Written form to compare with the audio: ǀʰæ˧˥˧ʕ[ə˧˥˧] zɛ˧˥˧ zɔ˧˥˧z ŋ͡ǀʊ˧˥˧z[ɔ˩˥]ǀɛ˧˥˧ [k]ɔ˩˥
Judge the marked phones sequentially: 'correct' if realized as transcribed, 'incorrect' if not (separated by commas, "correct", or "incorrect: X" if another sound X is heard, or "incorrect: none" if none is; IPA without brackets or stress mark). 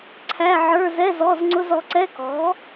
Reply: incorrect: ə˞˧˥˧, correct, correct